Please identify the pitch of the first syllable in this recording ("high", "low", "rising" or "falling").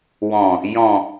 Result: low